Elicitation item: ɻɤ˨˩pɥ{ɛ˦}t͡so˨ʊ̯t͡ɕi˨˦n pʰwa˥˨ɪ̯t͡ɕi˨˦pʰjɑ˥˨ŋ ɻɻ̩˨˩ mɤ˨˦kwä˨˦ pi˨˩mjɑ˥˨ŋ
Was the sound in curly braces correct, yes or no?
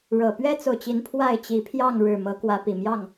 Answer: yes